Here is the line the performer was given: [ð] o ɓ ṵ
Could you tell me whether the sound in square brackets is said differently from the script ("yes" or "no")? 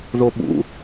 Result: no